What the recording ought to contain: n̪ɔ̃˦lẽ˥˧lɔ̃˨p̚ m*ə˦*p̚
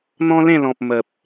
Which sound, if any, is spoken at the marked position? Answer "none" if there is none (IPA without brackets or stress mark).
ə˨